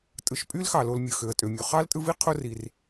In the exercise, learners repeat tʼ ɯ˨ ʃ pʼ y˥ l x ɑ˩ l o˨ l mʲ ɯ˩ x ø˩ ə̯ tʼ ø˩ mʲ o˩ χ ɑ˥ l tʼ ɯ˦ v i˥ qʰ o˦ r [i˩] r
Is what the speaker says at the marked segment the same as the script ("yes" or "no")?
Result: yes